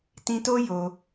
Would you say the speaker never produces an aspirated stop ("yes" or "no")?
yes